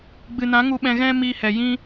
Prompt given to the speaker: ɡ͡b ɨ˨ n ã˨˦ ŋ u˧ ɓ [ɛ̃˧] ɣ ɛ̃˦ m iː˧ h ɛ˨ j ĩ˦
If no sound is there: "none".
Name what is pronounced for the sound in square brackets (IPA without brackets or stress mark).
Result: ɛ̃˧